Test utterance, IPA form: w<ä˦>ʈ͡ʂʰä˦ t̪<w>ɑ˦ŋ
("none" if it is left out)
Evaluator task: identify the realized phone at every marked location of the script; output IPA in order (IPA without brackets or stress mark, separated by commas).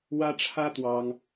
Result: ä˦, w